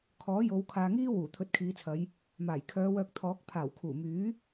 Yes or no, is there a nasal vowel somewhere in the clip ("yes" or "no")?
no